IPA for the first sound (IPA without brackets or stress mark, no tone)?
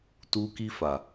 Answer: t